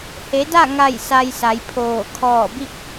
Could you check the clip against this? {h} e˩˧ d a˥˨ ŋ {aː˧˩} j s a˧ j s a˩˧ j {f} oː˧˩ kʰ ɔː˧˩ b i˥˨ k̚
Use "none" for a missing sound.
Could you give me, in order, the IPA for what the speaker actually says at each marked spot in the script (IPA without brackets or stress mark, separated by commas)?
h, a˧˩, pʰ